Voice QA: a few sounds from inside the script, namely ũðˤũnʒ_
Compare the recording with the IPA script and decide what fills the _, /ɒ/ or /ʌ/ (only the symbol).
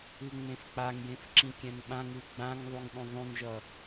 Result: ʌ